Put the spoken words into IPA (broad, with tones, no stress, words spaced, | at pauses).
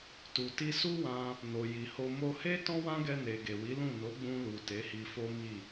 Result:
tu˨ti˧ su˦wã˧ | no˨ji˨ho˧ mo˧he˦ tɔ̃˦wã˦ɡɛ˧ne˨ ɡe˨wi˨˦lũ˦˨ no˨˦ɡ͡bũ˧lu˨ te˨˦hi˧fo˦mi˦˨